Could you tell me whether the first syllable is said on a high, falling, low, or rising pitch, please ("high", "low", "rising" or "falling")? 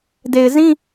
low